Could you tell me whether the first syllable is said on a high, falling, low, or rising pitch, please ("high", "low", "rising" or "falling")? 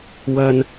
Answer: high